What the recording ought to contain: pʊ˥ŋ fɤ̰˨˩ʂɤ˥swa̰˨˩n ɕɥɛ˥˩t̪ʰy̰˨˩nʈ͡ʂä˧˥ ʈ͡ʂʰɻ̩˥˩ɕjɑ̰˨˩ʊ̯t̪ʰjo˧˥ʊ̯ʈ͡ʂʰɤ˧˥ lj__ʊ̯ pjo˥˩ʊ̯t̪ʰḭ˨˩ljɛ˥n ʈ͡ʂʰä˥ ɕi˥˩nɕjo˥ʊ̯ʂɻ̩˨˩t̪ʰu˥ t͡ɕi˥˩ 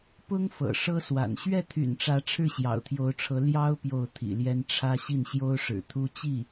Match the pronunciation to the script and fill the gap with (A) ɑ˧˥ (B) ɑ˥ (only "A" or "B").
B